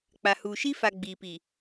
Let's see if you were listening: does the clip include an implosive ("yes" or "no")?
no